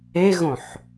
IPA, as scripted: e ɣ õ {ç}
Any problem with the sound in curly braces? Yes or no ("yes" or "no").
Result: yes